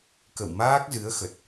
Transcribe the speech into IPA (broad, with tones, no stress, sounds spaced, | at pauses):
k ə̰˧˨ w m aː˦˥ k̚ z ɨ˨˦ ə̯ x ə˨˩ t̚